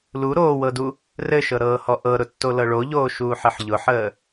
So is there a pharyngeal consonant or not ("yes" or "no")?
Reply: yes